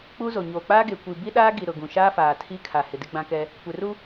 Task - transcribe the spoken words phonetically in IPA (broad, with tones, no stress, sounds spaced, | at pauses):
k͡p uː˦ z o˨ ɲ oː˨ k͡p aː˦ ɡ e˨ kʷ i˨ b i˦ ɗ aː˦ ɡ i˨ ɾ ʊ˨ ɡ ũ˨ ʃ aː˦ f aː˨ tʰ i˦ kʰ a˨ h ɪ˨ d ɪ˦ ɡ͡b ã˦ k ɛ˦ | kʷ e˨ r u˦